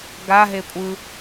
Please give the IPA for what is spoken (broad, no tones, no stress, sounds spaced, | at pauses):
ɡ a ɦ e kʷʼ ɯ